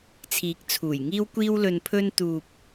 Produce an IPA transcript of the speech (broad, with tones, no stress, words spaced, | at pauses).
t͡sʰiː˨˥k̚t͡sʰuː˨˩jŋiː˥wkʷiː˥w lɵ˧npʰɵ˥n t̪uː˧p̚